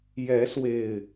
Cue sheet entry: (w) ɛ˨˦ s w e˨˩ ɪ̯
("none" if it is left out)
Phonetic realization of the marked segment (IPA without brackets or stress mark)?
j